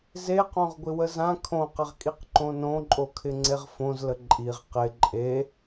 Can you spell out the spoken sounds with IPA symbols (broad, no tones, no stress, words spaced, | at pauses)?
zeqõʁ ɡʷɪwəzã kʰõqɪʁkʼiq ǃõnõǃʼokʰɪ ŋ͡ǀeʁfõzlə ǃʼiʁ qɪ ǃʼe